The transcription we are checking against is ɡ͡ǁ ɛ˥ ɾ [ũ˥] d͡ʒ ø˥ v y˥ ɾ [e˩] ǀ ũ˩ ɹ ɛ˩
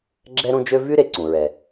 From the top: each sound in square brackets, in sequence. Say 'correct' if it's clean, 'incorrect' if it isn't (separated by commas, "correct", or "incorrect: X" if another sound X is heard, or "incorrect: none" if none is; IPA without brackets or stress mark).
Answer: correct, correct